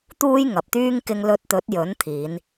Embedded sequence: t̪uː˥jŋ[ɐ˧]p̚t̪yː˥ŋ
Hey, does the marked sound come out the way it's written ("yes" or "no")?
no